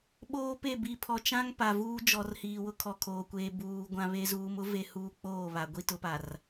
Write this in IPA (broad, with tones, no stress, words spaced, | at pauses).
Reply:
ɓoː˦pe˦˨ bi˨ pʰɔ˨t͡ʃã˦ŋ pa˨vuː˦ d͡ʒɔ˨rhiː˨wʊ˦ kʰɔ˨kʰoː˨kʷeː˨ buː˨ ɡʷã˦βe˦ zuː˨mʊ˦ve˨ huː˦k͡poː˦˨βa˨ ɡʷi˦tʊ˨˦pa˨r